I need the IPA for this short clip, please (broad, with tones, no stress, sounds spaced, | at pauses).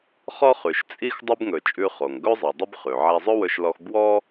χ ɔ˥ χ ʉ˩ ʃ t͡sʼ i˥ x dˤ o˥ b ŋ ɵ˩ t͡ʃʼ ʉ˧ χ o˩ ŋ ɡ ɵ˥ zˤ i˩ dˤ ɵ˥ b χ ʉ˩ ʕ æ˧ zˤ ɵ˥ w ɵ˧ ʃ l ɔ˧ x b w ɔ˥